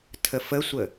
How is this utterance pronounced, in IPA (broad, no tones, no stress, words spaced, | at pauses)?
tʰəfəsʷə